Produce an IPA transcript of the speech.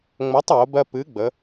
ŋ͡m o˨˥ tˤ w o˩˧ b ɜ˧ p ɨ˨˥ ɡ͡b ə˩˧

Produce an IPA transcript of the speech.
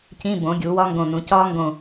c ĩ˧˥˧ b õ˩˥ ɡʲ u˩˥ w ɒ˦˥ ŋ ɡ õ˧˩ n ũ˩˥ c ɒ˦˥ ŋ ɡ õ˧˩

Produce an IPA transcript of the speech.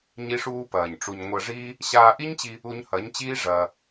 ɲ i˦ ʂ uː˦ p ɐː˨ ɲ ʈ͡ʂ u˨ ɲ ŋʷ ɐ˧ ʐ iː˦ | ɕ aː˧ ʔ i˦ ɲ t͡ɕ i˧ | u˧ ɲ h ɐ˨˦ ɲ t͡ɕ iː˦ ʐ ɐː˧

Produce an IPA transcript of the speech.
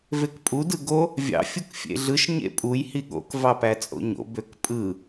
v e k pʼ u d ɯ ɡ o | vʲ ɑ̰ fʲ u k fʲ ḛ ɮ ɯ ʃ ɲ ḛ pʼ u j h i ɠ o̰ k v ɑ p æ t͡sʼ o̰ ɲ o̰ b ø k pʼ ɯ

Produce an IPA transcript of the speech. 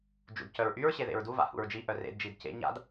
d͡ʒ ṵ d c œ ɹ ʔ y ɹ ɕ e ð ḛ ɹ d u v a̰ h ṵ ɹ d͡ʒ i ʔ œ r ḛ d d͡ʒ i d c ḛ ɲ a̰ d

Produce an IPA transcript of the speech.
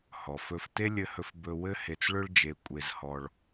h ɔ˩ f ɵ˧ f t e˥ lʲ ɘ˧ h ɵ˧ f b ɵ˧ w ɘ˥ h e˧ t͡s ɭ ɵ˥ ɭ d͡ʒ e˧ kʷʼ e˧ z h ɔ˧ ɭ

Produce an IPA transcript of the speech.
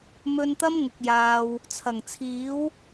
m ɵ˧ n t̪ ɐ˥ m ŋ ʊ˨ k̚ j aː˨ w | t͡sʰ ɐ˨˩ ŋ t͡sʰ iː˨˥ w

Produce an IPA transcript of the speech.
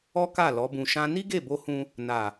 ɔ˦ k a˦˨ l ɔ˨˦ b ũ˧ ʃ ã˦ n i˦ ɡ e˦˨ b o˧ h ũ˧ | n a˨

